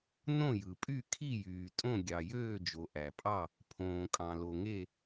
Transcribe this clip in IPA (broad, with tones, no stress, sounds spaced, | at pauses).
n õ˥˨ j ɯ˩ pʼ y˥˨ kʰ i˥˨ j yː˩ tʼ õ˥˨ ɡʲ ɑ˩ j øː˥˨ d͡ʒ o˩ ʔ æ˩ pʼ ɑ˥˨ | pʰ õː˩ kʼ ɑ̃˩ l o˩ ŋ e˥˨